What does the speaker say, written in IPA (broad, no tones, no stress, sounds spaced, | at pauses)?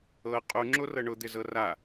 ɤ qʼ u ŋ͡ǁ o r ɤ ɳ ʊ d̪ ɪ z ɤ r a